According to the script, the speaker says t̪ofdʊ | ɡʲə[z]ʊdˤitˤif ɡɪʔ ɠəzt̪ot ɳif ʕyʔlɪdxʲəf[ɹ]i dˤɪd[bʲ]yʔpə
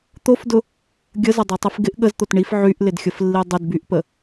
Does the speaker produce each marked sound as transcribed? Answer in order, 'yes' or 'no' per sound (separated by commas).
yes, no, no